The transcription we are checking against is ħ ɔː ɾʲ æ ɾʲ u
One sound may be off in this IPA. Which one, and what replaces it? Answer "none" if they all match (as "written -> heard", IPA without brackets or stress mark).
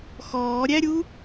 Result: ħ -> x